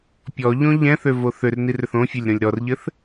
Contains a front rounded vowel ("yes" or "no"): yes